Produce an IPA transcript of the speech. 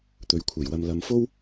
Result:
t̪ɵ˨ɥkʷʰɐ˨˩jwɐ˨m lɐ˨mfo˥w

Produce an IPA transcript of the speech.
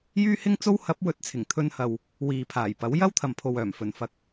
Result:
jyː˥hɪ˥ŋt͡so˥w hɐ˨˥p̚wɵ˨˥t̚ t͡sʰɪ˨˩ŋt̪ʰɵ˧nhɐ˨w | wiː˨pʰaː˨˩jpɐ˨˥w jɐ˥wt̪ʰɐ˨mpʰo˨w œː˨˩mfɵ˨˩nfɐ˨˥k̚

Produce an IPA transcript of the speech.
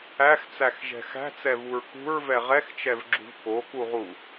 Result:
æxt͡sæxʒɛ̤ xæ̤t͡sɛvuɹ kṳɹvɛ ʁɛxt͡ʃɛvɡ͡ǁṳv kokuʁu

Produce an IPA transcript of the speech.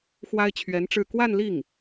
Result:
xwa˥ɪ̯t͡ɕʰɥɛ˧˥nʈ͡ʂɻ̩˥˧ kwa˥˧nli˥˩ŋ

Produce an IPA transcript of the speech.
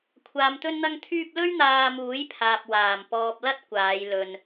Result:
kʷʰaː˨mt̪ɵ˧nn̪ɐ˧ŋt̪ʰyː˧p̚ lɵ˥ɥn̪aː˧muː˨˥jpʰaː˨p̚ waː˨˩mpɔː˨p̚ lɐ˥t̚kʷaː˨˧j lɵ˨n

